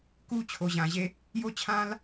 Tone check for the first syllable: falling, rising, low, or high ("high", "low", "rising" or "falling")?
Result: high